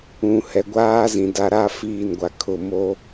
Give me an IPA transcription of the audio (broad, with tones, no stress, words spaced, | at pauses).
ũ˨hɛ˨ɡʷaː˦zĩ˨ da˨ɾa˦ fiː˦˨nɡʷa˨kʰʊ˦˨ mo˦